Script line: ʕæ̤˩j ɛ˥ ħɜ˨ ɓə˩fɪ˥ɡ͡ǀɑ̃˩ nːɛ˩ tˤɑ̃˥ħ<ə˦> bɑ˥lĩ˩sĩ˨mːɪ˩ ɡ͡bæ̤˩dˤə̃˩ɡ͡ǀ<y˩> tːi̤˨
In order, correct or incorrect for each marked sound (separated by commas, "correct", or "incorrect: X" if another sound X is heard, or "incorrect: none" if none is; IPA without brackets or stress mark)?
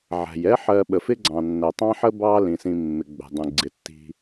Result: incorrect: ə˥, incorrect: ɪ˩